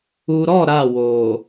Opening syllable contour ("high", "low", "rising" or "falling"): low